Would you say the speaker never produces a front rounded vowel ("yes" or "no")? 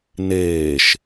yes